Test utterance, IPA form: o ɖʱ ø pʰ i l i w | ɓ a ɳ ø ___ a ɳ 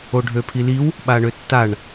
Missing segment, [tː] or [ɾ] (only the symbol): tː